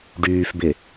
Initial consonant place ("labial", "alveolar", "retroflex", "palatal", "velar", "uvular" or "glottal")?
retroflex